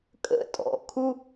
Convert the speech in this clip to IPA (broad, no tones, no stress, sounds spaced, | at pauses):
kʼ ə̰ tʼ ɔ̰ kʰ u